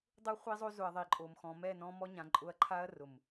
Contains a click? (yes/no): yes